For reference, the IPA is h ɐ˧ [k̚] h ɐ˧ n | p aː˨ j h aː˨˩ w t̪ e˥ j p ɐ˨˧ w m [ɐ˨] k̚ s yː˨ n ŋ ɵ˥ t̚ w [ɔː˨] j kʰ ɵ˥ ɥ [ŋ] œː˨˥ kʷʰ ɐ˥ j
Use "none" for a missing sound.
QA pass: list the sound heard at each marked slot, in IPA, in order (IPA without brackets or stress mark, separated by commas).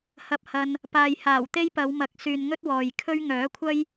p̚, ɐ˨˥, ɔː˨, ŋ